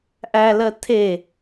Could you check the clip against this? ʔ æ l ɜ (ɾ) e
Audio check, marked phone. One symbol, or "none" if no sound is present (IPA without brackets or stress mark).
tʰ